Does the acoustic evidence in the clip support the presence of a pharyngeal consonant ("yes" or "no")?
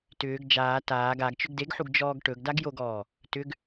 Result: yes